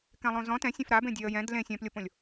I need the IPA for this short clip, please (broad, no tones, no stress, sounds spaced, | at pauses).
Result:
k ɛ̃ lˠ õ z ɔ̃ t ɛ̃ sʲ ẽ f ɾ a b ẽ dʲ e ə̯ j ɛ̃ d l ẽ sʲ ɛ̃ p lʲ o p õ lʲ